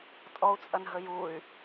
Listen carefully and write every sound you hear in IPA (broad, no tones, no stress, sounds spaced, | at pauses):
tʼ ɔ u̯ t͡sʼ ɐ n ɦ ə j u y̯